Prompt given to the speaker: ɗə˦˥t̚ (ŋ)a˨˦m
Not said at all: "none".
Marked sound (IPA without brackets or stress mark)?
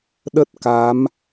k